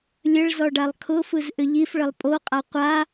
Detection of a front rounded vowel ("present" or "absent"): present